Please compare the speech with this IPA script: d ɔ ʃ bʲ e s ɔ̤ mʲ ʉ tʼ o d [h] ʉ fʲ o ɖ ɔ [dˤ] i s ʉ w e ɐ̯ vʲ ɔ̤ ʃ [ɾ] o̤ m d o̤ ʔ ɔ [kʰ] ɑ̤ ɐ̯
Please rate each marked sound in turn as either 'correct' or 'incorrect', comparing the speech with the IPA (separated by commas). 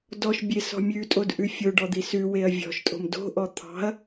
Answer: incorrect, incorrect, incorrect, incorrect